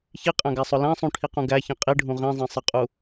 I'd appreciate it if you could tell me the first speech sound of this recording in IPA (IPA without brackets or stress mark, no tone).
ç